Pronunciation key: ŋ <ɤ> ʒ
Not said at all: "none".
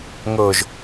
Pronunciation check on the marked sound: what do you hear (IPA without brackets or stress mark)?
ɤ